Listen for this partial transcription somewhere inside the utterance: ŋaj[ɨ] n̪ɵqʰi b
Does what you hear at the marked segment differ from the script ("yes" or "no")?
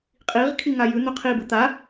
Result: yes